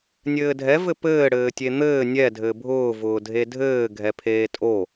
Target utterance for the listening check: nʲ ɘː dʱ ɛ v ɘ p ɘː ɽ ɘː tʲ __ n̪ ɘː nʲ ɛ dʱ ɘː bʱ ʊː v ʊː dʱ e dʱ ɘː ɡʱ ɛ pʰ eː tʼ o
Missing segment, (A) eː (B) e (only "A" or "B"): B